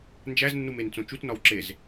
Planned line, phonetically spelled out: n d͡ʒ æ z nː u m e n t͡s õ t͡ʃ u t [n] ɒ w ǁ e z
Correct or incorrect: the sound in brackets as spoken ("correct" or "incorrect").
correct